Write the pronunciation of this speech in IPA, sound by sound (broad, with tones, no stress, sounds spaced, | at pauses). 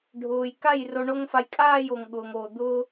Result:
ɖʱ ʊː˨ j k a˦˨ j r o˧ ɳ o˦ ŋ f a˧ j kʼ aː˦˨ j o˨ ŋ ɠ ʊː˨ ŋ oː˨ d̪ ʊː˦